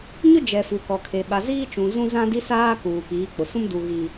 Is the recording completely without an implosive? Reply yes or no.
no